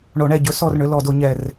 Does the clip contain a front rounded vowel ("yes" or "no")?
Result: yes